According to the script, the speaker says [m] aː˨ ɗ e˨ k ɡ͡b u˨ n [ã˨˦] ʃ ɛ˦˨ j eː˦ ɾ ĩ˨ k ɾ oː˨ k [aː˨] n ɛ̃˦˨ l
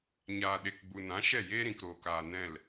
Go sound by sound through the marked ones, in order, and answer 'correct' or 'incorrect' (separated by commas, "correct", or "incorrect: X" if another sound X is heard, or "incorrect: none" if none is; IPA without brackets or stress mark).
incorrect: ɲ, correct, correct